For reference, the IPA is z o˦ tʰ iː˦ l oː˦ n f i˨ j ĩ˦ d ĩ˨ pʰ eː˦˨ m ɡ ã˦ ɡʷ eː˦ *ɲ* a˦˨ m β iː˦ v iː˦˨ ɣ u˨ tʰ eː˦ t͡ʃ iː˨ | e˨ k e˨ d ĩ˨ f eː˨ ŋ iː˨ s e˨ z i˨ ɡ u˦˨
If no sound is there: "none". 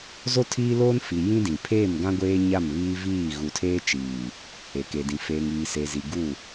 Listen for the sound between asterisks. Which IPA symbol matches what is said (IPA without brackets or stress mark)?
ɲ